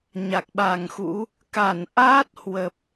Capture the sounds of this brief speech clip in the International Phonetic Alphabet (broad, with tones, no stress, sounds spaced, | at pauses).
ɲ a˨˩ k̚ ɓ a˨˩ ŋ x ṵ˧˥ | k a˧˩ n ʔ aː˦˥ t̚ h w ə˨˩ p̚